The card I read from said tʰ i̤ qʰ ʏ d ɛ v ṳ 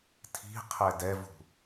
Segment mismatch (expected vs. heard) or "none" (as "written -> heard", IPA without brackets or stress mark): ʏ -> ɛ